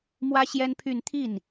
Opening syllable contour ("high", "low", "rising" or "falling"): high